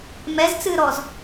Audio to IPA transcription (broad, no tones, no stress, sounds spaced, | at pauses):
m ɛ z t͡s ɨː ɾ ɔ z